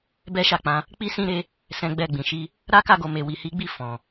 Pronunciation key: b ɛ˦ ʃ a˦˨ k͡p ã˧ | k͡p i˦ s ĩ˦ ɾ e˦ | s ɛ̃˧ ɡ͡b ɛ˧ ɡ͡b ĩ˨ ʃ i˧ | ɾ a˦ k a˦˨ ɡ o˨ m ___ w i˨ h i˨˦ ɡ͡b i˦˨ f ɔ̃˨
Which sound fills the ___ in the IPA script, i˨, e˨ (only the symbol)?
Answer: e˨